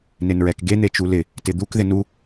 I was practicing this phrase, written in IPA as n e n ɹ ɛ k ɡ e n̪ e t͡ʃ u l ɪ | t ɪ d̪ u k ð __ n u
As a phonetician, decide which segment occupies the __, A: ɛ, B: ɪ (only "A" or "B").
B